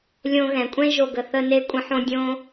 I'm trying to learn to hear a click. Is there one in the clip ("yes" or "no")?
no